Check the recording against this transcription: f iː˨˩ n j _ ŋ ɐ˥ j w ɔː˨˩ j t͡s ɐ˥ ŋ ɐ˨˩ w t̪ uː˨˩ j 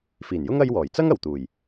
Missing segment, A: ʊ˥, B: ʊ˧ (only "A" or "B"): A